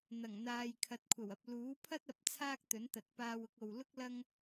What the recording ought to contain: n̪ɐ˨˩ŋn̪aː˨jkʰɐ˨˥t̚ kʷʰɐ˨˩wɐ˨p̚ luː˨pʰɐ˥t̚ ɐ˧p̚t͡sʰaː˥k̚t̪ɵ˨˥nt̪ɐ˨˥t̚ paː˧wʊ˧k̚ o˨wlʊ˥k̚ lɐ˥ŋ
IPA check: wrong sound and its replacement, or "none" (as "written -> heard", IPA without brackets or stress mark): uː˨ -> uː˨˥